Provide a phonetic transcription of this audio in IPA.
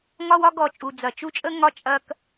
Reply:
ŋ ɒ˦ w ɒ˦ ɡ ɔ˨ t͡ʃʼ u˨ d͡z ɐ˨ t͡ʃ u˦ t͡ʃʼ ə˦ ŋ ɒ˦ t͡ʃʼ ɐ˦ k

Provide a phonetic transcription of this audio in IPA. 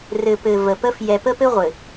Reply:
r ɘ˨ p ɘ˨ v ə˨ p ə˦ f j ɛ˨ p ə˦ p ɘ˦ ʁʷ ɘ˨

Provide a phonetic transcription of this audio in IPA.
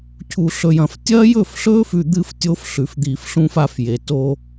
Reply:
cʰ u˨ ɬ ɵ˨ j ɐ̃˨ f tʲ ɐː˦ j ɵ˦˨ f ɬ ɵː˦ f ʉ˨ d̪ ɨ˦˨ f tʲ o˦ f ɬ ʉ˨ f d̪ iː˨ f ɬ ũ˦ f a˦ f j e˨ t o˦

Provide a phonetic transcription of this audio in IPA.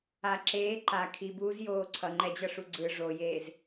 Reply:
a ǁ eː ǃ a kʰ i b uː z j oː ǀʰ ʌ ŋ͡ǃ ɛ d͡ʑ ʌ ʂ u ɡ͡ǀ ɯ ʐ o j eː z

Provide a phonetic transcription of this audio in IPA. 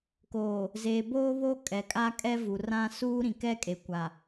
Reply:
k oː˨ | z eː˨ b oː˦ β o˦ kʼ ɛ˨ kʼ a˦ kʼ ɛ˦ v u˨ r ã˦ s uː˦ ɾ ĩ˨ k ɛ˦ kʼ e˨ kʷ a˨

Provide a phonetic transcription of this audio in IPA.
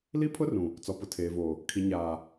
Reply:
l i˦ pʰ ʊ˦ r ũ˨ | t͡s ɔ˨ p ʊ˨ tʰ eː˨ v oː˨ | kʰ i˨ ɲ aː˨

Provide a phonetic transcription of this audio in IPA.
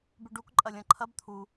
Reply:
b ʉ ɖ u k ǃʼ ɐ lʲ ɐ̃ ǃʰ ɐ b t̪ʰ u

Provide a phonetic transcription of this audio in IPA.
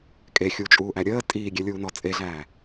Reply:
kʼ e xʲ u t͡ʃʼ uː ʔ æ ɾʲ əː tʼ iː ɡʲ ɛ lʲ uː n ɔː t͡sʼ e ɮ æː

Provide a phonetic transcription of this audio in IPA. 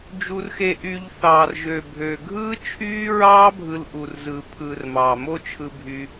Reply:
d͡ʒ u˧ r x e˧ ʔ y˧ ʎ θ ɑː˨ r ʒ ø˨ bʱ ø˨ ɡʱ ɯː˦ t͡ʃʰ yː˦ ɹ ɑː˦ bʱ ɯ˧ l ʔ u˨ r z ɯ˨ pʰ ɯː˨ r m ɑː˨ m o˦ t͡ʃʰ ɯ˧ bʱ y˧

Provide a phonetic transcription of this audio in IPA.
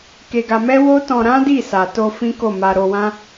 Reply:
k e˧ ɡ a˧ m ɛ˦ w o˦ t ɔ̃˧ ɾ ã˦ d i˦˨ s a˨ t o˧ f ĩ˦ k o˦˨ m a˧ ɾ o˧ w ã˦

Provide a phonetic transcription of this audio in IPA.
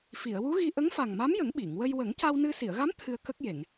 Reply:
f i˨˩˨ ə̯ w u˧˥ ɣ i˧ ʔ ə˧˥ ŋ f a˨˩ ŋ m a˧˥ m j ə˨˩˦ ŋ ɓ i˨˩˨ ŋ w ə˧ j w ə˨˩˦ ŋ c a˧ w n ɨ˧ s i˨˩˨ ə̯ ɣ a˧˥ m t̪ʰ ɨ˧ ə̯ k ə˦˥ k̚ j e˨˩˨ ŋ

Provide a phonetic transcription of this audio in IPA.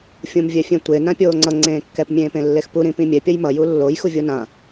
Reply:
fʲ ũ m vʲ ɛ fʲ ẽ tʷ e n ã pʲ oː ŋ͡ǀ ʌ ŋ͡ǀ ẽː kː ɛ p mʲ ẽː p ẽ lː e x p u ɾ ĩ p ĩ mʲ ɛ pʲ ʌ j m ʌ j u lː o j x u vʲ o n ã

